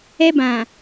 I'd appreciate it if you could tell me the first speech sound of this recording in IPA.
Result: ɛ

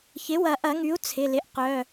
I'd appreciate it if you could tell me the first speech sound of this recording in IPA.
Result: ç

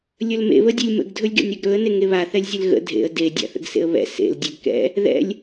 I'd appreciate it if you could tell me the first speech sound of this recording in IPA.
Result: lʲ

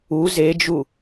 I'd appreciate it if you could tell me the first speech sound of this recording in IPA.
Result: u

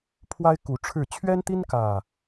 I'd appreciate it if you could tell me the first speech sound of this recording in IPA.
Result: pʰ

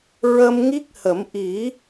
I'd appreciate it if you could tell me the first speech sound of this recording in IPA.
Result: ɹ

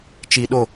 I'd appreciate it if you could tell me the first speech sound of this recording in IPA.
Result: t͡ʃ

